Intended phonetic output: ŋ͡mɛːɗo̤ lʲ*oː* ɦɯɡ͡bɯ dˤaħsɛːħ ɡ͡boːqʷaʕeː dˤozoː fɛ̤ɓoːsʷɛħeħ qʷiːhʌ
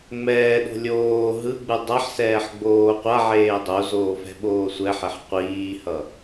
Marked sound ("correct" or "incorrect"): correct